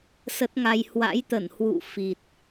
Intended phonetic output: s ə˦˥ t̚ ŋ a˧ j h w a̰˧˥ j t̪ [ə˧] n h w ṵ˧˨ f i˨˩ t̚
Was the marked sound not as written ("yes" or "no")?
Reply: yes